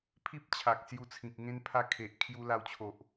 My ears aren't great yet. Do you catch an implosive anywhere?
no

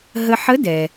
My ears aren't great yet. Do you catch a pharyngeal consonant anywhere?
yes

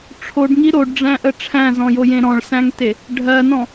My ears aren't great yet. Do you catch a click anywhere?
no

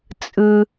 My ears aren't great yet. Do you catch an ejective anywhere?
yes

